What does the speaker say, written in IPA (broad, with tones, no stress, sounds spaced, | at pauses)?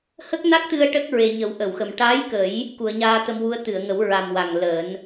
h ə˦˥ k̚ n a˦˥ k̚ t̪ ɨ˧ ə̯ ʈ ə˦˥ k̚ ɹ e˨˩ ɲ ə˨˩˦ w ʔ ə˨˩˨ w x ə˨˩ m ʈ a˧˥ j k ə˨˩˦ j | k u˨˩˨ ə̯ ɲ aː˧ t̪ ə˧ m w u˧˥ ə̯ t̪ ɨ˨˩˨ ə̯ ŋ ə˨˩˦ w ɹ a˨˩ m w a˨˩ ŋ l əː˨˩˦ n